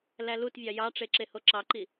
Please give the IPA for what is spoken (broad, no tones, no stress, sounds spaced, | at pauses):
l æ l u t vʲ ɑ j ɑ ʈ͡ʂ e ǁ e h o ǁ ɑ ǃ i